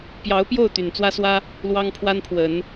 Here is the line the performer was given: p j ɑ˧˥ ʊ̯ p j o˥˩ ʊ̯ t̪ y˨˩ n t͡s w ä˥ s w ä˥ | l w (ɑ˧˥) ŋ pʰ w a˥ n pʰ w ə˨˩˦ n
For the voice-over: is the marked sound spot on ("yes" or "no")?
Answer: no